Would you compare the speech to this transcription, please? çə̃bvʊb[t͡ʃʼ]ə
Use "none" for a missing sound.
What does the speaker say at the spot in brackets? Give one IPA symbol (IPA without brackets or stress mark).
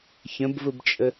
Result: t͡ʃʼ